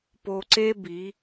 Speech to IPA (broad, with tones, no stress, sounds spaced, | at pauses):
p o˧ ǀ e˦ b i˨˦